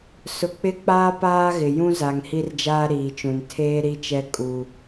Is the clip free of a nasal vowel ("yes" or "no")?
no